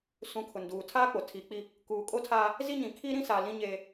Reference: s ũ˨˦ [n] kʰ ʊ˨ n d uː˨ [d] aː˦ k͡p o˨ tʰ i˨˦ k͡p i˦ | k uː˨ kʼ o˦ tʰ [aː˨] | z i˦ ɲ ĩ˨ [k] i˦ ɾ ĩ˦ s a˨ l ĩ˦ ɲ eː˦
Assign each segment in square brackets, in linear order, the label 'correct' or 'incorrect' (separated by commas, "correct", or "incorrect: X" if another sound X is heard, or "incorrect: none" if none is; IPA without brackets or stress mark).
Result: incorrect: none, incorrect: tʰ, incorrect: aː˦, incorrect: kʰ